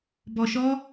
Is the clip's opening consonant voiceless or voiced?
voiced